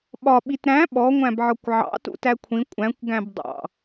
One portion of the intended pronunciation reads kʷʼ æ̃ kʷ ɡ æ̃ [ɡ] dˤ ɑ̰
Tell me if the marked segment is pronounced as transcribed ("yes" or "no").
no